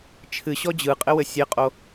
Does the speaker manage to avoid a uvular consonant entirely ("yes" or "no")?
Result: no